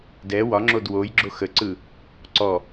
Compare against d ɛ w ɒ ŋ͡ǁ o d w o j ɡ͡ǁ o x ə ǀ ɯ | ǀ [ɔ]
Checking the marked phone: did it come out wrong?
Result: no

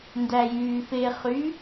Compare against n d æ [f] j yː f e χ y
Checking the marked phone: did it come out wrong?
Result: yes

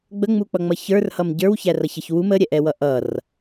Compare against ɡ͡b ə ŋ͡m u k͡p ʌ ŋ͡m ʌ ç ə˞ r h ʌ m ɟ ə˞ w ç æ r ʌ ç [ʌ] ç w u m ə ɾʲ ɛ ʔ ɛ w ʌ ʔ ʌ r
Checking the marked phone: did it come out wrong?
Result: no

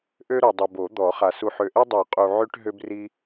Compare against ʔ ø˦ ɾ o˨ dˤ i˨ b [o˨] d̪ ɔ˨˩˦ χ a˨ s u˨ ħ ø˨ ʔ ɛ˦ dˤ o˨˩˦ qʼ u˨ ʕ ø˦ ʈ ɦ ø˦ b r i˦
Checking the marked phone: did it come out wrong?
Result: yes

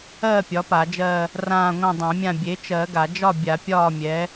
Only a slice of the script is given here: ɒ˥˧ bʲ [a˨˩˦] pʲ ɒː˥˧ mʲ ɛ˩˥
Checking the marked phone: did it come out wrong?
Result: no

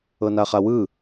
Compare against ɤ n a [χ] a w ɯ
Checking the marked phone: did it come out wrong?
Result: no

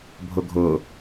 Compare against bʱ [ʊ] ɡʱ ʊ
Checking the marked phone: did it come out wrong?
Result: no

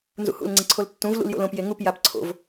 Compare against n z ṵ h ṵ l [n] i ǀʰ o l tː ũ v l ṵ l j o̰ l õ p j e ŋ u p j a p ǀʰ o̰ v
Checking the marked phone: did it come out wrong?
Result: yes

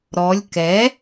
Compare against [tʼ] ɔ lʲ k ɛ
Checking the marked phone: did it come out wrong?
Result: yes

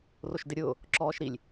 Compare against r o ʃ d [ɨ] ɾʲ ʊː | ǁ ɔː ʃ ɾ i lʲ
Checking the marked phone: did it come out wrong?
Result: yes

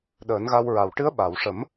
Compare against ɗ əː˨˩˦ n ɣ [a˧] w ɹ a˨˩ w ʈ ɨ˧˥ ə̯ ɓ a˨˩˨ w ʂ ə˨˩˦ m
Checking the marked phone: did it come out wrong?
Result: no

